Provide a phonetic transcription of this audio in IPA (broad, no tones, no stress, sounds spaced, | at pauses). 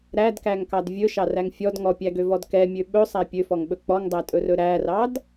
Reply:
ɾ æ d k æ ŋ k ɑ d vʲ ɵ ʃ ɑ r æ ŋ fʲ ɔ d ŋ ɔ pʲ æ ɡ ø v ɔ d k ɛ mʲ ø ɓ ɵ sˤ æ pʲ ø f ɔ ŋ ɓ ɵ k͡p ɔ ŋ dˤ æ tʼ ɵ r ɵ ɾ æ r ɑ d